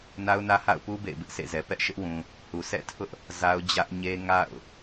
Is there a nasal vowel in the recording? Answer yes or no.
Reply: yes